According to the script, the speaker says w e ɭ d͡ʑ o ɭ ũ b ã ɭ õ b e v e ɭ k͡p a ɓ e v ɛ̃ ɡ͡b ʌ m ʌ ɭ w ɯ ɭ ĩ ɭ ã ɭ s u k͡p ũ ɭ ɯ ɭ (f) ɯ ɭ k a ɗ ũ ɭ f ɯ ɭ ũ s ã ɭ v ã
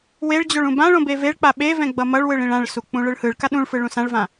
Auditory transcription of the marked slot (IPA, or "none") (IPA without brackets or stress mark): h